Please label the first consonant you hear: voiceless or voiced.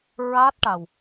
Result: voiced